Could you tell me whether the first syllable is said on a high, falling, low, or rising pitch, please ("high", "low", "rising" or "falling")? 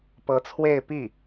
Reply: rising